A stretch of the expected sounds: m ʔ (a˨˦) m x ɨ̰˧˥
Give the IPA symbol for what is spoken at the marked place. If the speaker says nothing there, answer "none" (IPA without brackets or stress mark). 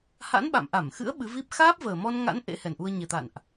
a˧˩